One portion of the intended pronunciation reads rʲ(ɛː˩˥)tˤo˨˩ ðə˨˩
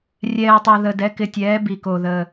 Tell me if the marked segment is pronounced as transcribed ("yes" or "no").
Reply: no